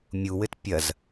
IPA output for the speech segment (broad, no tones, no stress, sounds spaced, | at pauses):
mʲ u w ɘ t pʲ ɐ z